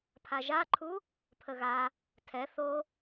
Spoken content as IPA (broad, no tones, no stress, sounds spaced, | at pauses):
pʰ a ʒ a ǃʰ u | pʰ ə ɣ a | tʰ ɛ θ o